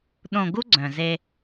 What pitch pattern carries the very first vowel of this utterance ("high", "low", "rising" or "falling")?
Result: low